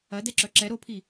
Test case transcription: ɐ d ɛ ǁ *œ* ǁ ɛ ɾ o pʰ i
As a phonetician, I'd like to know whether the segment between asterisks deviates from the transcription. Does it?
no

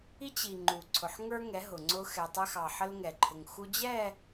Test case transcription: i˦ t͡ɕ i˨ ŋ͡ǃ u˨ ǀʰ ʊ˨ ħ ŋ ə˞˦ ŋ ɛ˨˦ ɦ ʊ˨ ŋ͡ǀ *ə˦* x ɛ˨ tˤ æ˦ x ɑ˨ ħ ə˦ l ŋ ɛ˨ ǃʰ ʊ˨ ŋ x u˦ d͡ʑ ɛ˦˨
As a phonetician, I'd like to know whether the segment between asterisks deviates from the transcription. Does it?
yes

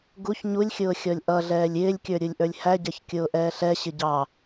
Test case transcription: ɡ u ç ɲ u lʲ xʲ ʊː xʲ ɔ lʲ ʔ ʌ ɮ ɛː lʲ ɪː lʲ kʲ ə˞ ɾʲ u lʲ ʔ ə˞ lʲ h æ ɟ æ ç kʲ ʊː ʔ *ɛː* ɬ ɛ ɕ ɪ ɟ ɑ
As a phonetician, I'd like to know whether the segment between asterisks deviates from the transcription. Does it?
no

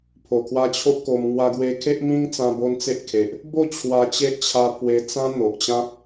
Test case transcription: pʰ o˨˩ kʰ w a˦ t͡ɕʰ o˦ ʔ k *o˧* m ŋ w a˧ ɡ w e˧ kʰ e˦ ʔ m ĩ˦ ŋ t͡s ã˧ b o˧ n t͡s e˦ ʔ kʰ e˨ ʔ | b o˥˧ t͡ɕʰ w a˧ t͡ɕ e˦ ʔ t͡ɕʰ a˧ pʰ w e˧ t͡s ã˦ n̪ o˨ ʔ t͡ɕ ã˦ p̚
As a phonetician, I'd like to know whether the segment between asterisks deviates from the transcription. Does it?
no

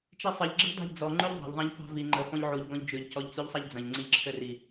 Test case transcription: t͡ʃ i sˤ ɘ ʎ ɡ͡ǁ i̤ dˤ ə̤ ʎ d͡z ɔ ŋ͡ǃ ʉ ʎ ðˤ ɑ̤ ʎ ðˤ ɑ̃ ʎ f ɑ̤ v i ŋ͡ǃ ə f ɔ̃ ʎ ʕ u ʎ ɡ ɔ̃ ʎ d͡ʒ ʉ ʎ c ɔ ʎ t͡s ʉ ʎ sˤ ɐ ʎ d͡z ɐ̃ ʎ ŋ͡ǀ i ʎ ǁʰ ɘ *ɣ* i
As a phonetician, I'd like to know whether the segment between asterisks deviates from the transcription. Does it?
yes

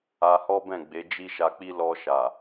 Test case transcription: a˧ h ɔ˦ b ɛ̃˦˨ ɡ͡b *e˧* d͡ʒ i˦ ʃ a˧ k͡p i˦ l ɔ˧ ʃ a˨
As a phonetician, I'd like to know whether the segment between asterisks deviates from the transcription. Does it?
yes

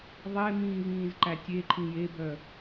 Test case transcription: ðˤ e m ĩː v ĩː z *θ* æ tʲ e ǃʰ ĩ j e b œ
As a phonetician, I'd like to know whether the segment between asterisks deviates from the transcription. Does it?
yes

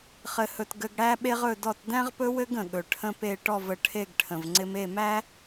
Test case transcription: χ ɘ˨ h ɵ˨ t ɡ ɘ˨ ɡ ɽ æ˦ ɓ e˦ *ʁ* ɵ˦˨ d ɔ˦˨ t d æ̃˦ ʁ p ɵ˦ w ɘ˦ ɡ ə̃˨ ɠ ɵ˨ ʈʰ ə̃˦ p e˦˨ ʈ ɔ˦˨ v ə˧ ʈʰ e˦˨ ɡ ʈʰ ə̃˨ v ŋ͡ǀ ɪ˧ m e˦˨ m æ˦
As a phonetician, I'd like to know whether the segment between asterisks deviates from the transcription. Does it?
no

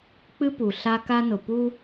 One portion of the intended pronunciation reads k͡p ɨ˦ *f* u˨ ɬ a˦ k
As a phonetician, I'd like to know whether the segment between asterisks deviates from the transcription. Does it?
yes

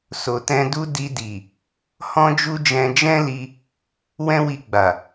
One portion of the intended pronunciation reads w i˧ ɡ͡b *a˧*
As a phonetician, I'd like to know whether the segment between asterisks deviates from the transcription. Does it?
yes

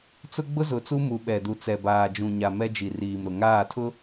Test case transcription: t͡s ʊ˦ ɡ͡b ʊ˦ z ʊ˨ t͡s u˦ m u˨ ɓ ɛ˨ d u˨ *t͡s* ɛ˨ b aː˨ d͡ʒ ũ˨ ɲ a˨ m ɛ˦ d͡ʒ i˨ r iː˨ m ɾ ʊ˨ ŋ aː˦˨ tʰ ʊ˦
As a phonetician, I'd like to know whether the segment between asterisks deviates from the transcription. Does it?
no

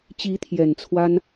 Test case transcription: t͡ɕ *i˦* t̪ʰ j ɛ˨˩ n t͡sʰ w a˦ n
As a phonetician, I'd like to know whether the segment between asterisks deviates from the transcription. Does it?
yes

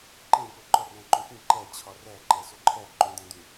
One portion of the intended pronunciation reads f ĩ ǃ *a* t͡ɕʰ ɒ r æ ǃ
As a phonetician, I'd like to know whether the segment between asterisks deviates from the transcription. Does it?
yes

